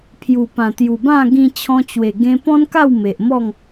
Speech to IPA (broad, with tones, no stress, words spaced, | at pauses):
pʰju˨˩pã˨˩ t̪ju˨˩bã˥˧ ɡĩ˧ t͡ɕʰɔ̃˧t͡ɕwe˨˩ ɡẽ˧pɔ̃˦nka˥˧w me˨ʔmɔ˥˧ŋ